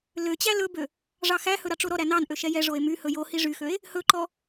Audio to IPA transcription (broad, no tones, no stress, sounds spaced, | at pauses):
l ø t͡ɕ æ l ɵ b ø | ʐ ɑ x æ h ɵ ɾ ɑ ʈ͡ʂ o ɾ ɔ ɾ æ n ɑ n ʔ ø ʃ ɛ j ɛ ʐ o e̯ m y h ɵ j o h i ʐ y x ø e̯ | h ɵ ǃ ɔ